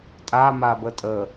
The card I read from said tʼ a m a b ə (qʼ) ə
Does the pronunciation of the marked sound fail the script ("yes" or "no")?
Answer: yes